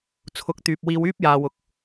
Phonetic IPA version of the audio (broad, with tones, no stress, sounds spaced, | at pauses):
t͡sʰ ʊ˨˥ k̚ t̪ yː˨ p̚ w iː˧ w yː˥ p̚ j aː˨ w ʊ˨˥ k̚